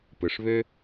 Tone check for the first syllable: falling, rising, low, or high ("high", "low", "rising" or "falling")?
low